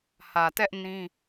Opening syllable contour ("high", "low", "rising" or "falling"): low